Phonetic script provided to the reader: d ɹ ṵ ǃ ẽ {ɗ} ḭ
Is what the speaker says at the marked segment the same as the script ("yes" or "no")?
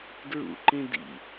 no